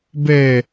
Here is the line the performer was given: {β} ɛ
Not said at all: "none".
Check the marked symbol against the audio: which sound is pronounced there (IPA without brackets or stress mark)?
b